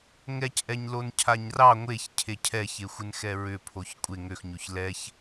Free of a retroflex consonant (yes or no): yes